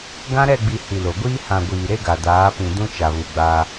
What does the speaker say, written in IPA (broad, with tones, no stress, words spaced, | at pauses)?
ɡã˦ɾɛ˦˨ɡ͡bi˨ hi˨lo˨ɡʷiː˦ hã˨ ɡʷiː˨ɾe˦ɡa˨ daː˨˦pĩ˨ dũ˦t͡ʃa˨βu˨ɡ͡ba˦